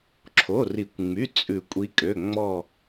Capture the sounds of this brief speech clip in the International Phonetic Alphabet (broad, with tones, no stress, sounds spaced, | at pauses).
ǁʰ o˩˧˩ r i˨˩˦ kʷ ŋ͡m y˩˧˩ t͡sʼ ʉ˨˩˦ kʷʼ i˨˦ kʼ ø˩˧˩ ŋ͡m ɔ˧˩